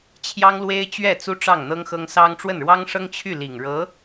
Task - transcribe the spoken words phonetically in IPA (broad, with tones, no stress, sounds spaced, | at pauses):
t͡ɕʰ j ɑ˥ ŋ l w e˥ ɪ̯ t͡ɕ ɥ ɛ˥˩ t͡s u˥ ʈ͡ʂ ɑ˥˩ ŋ n̪ ɤ˥ ŋ x ɤ˥ ŋ s ɑ˥ ŋ ʈ͡ʂ w ə˥˩ n ɻ w ɑ˥ ŋ ʂ ɤ˥ ŋ t͡ɕʰ y˥˩ l i˨˩ ŋ ɻ ɤ˧˥